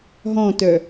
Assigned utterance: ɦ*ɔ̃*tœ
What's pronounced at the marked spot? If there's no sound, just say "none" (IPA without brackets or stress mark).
ɔ̃